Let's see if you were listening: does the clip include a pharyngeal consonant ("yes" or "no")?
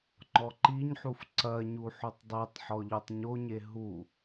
yes